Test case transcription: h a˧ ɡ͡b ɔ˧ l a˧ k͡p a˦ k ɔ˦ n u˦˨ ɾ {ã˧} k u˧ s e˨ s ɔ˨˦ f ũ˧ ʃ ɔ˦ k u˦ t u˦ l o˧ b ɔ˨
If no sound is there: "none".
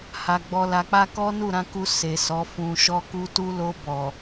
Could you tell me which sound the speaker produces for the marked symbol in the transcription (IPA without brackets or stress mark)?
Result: ã˧